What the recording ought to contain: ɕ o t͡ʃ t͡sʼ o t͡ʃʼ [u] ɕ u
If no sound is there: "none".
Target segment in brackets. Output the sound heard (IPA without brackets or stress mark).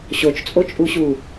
u